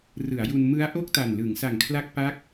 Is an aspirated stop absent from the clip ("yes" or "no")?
no